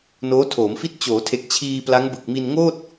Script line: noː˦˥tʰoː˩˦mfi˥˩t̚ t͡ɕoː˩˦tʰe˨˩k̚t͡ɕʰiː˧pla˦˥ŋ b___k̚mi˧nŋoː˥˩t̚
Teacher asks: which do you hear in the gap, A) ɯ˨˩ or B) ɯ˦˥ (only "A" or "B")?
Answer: A